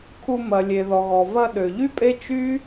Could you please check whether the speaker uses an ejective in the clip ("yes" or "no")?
yes